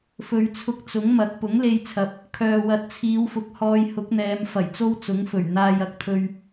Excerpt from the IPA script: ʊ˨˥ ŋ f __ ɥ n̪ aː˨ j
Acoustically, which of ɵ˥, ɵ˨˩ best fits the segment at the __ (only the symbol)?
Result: ɵ˨˩